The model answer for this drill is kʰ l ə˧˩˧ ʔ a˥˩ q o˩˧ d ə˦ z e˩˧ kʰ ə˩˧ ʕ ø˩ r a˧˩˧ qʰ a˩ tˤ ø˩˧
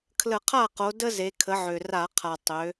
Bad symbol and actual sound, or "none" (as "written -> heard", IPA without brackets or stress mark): ʔ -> qʰ